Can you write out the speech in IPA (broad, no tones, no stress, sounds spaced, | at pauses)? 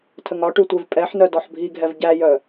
tʰ ə ŋ ɒ ʈ ʉ tʷ e v pʼ ɛ ħ n œ d ɔ ħ bʱ i ɡʱ ɛ v ɟ æ j œ